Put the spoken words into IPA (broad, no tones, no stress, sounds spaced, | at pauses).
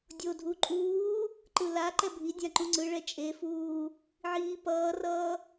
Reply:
dʲ o dʱ u ǃʼ uː | ǃ ɯ l a ǃ ɛ bʱ i dʲ ã ǃ ũ ŋ͡ǀ ɯ ɭ ɛ t͡ʃʼ e f uː | ʕ iː p ʌː r ʌː